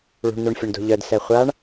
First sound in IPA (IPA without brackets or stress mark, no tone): ɭ